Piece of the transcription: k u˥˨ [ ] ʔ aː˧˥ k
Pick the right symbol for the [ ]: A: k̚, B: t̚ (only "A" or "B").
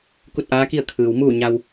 B